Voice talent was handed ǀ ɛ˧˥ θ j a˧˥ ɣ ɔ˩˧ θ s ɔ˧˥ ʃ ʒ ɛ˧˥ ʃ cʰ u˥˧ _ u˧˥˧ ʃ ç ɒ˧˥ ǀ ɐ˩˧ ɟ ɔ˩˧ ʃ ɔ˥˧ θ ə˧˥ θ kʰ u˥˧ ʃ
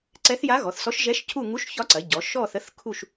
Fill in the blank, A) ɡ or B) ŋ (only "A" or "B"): B